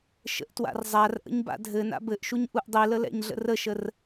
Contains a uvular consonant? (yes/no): no